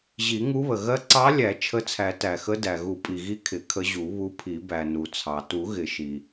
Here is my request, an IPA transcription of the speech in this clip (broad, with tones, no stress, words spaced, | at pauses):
ʑi˨˩˦ŋu˧˥βə˩ ɣɜ˧˥ǀɑ˧˥ lʲæ˨˩˦ t͡ʃʰə˧˥t͡sʰæ˨˩˦tæ˩xə˧˥ dæ˩ɣu˨˩˦pʼi˩ ɣi˧˥ kʰɪ˨˩˦kʰə˧˥ʑu˨˩˦ βu˧˥pʰi˨˩˦ bæ˩ nu˩t͡sʰɑ˩tu˨˩˦ ɣɪ˨˩˦ʃi˩